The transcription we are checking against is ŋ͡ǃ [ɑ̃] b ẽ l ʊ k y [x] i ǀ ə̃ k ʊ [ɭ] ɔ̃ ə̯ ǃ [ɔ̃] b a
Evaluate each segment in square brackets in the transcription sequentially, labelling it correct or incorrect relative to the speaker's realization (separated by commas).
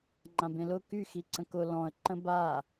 incorrect, correct, incorrect, incorrect